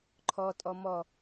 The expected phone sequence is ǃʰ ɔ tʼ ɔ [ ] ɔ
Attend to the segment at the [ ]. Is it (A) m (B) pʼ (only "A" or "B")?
A